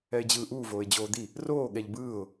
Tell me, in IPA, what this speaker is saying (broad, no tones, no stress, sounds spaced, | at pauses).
ɛ ɪ̯ d͡ʑ ɯː ʔ uː v oː ɪ̯ d͡ʑ oː d̪ i | r oː ɠ ɛ ʎ b ɯː ʊ̯